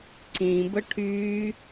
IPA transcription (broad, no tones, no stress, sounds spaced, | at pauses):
ǀ ĩ b ə ʈʰ yː